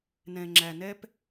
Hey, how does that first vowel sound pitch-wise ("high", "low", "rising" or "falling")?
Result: low